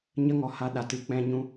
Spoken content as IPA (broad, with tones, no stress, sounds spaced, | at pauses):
ɲ ə˦ ŋ ɔ˨ h a˧ ɗ a˨˦ t ɨ˦ k͡p ɛ̃˧ ɲ ũ˧